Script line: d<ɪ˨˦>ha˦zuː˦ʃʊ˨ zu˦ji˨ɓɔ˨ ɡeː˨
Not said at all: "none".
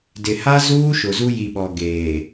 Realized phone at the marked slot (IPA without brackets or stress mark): ɪ˨